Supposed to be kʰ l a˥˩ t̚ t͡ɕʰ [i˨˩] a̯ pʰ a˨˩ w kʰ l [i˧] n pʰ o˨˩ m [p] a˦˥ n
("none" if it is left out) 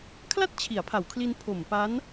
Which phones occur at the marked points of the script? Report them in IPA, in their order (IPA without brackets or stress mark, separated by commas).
i˩˦, i˧, p